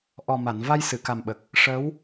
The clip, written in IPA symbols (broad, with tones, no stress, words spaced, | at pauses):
ʔɔ˨˩ma˨˩˨n va˧jsɨ˨˩˨ka˨˩mɓə˨˩k̚ | ʂə˧˥w